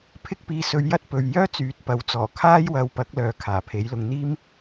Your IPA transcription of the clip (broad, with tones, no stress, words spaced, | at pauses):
pʰɪ˥k̚ piː˧sɵ˧ɥjɐ˥t̚ pɵ˧ɥ jœː˥ t͡syː˨˥t̚pɐ˨˥wt͡sɔː˨˩ kʰaː˥jwɐ˧wpɐ˨˥k̚lœː˨˧ kʰaː˨˩pʰe˨˥jlʊ˧ŋ n̪iː˥m